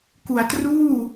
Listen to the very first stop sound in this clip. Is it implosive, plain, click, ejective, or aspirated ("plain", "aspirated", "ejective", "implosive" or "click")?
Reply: plain